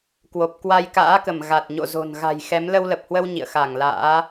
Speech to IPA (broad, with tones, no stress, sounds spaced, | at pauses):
k w o˨˩ p̚ k w a˧ j k a̰ː˧˥ k ə˧˩ m ɣ a˨˩ t̚ ɲ o̰˧˨ z o̤˨˩ n ɣ a̤˨˩ j x ɛ˨˦ m l ə˧ w l ə˨˩ p̚ h w ə˧ w ɲ ḭ˧˨ ə̯ x a˧˩ ŋ l a̰ː˧˥